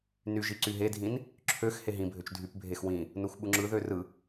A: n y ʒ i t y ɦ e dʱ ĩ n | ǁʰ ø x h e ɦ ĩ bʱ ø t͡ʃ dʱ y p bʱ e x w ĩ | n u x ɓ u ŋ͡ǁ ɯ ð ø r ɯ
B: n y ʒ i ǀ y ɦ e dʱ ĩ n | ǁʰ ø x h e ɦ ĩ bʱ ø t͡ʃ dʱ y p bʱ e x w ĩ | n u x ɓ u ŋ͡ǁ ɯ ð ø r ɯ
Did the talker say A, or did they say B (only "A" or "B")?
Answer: B